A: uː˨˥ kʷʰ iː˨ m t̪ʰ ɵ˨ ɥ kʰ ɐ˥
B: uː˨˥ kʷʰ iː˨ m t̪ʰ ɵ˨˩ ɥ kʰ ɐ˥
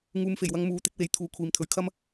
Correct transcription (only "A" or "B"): A